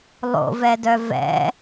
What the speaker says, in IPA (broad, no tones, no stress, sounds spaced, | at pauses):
lˠ o̰ v ɛ d œ v ɛ̰